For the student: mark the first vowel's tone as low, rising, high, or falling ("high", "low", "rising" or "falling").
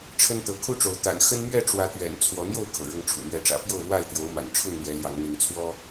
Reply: high